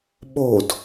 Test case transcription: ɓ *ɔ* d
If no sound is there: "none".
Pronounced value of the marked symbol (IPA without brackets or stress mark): o